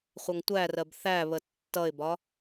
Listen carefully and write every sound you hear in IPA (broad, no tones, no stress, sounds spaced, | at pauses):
χʷ ʌ ŋ tʷ æ r ɜ b θ æ β ə tː ʌ ɪ̯ b ɒ